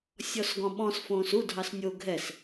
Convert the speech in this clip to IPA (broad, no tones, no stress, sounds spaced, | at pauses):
sʲ ɔ s ɡ ɔ̃ ɓ ɔ̃ s f õː s u dʱ ɑ s nʲ o ɡʱ ɛ s